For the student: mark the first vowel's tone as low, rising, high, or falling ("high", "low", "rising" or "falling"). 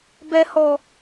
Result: high